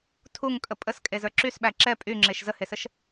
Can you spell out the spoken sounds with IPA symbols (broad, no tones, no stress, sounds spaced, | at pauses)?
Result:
tʰ u ŋ kʼ ə pʼ ə s kʼ e z ə˞ ǁ y s ɓ æ ǁ ɛ pʼ y ŋ͡ǁ e ʃ z ə h e s ə ʃ